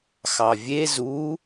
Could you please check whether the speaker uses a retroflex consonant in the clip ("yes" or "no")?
no